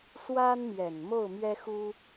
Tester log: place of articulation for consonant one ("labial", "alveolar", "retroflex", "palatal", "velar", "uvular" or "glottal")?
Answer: alveolar